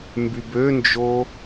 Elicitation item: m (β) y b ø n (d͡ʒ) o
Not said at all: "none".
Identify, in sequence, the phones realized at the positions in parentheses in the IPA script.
b, d͡ʒ

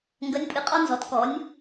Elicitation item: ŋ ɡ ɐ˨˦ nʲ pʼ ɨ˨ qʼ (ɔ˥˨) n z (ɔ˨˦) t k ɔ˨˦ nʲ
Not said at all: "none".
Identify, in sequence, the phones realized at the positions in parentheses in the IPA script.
ɔ˦, ɔ˨˦

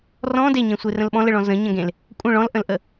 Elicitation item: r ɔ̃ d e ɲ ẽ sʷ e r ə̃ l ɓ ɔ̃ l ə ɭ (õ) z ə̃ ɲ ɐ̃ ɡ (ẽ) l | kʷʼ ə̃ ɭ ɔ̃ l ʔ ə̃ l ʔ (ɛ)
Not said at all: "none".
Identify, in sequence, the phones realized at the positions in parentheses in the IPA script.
ɔ̃, ẽ, ə

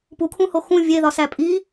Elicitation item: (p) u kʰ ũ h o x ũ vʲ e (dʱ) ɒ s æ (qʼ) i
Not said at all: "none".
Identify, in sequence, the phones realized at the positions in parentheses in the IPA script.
p, ð, pʼ

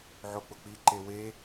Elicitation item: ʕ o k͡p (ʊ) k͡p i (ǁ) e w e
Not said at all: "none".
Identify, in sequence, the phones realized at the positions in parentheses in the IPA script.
ʊ, ǃ

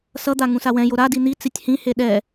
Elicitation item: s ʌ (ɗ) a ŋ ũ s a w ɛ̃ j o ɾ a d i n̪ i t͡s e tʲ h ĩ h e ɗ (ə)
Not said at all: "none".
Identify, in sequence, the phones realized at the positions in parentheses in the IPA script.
d̪, ɛ

